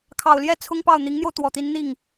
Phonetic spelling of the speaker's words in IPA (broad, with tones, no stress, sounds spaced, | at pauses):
kʰ ɑ˨˩ ʊ̯ l j ɛ˥˩ t͡sʰ ʊ˥ ŋ p ɑ˥˩ ʊ̯ n̪ i˧˥ ŋ n̪ j o˧ ʊ̯ t̪ w ɔ˨˩ t̪ i˧˥ n n̪ i˥˩ ŋ